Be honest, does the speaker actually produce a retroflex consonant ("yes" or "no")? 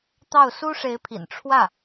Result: yes